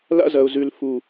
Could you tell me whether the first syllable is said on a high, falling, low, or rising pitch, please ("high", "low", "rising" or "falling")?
high